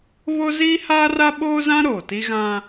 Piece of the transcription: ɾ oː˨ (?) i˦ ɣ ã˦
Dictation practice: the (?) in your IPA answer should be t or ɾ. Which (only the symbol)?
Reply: t